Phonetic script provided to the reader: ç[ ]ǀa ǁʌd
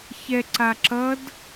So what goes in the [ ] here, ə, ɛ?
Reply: ɛ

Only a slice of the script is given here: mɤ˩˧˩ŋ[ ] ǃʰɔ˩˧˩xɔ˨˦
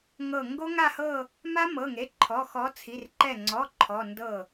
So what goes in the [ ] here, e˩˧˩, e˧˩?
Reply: e˩˧˩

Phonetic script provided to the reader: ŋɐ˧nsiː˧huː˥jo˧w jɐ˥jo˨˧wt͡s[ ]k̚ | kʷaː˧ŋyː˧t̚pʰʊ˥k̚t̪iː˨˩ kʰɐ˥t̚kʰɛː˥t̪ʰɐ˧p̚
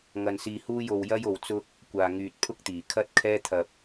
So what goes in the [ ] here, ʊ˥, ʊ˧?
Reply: ʊ˥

